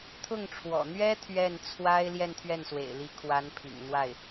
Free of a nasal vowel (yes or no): yes